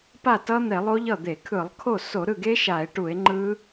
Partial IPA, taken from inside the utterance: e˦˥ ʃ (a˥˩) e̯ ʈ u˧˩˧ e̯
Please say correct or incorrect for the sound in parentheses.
incorrect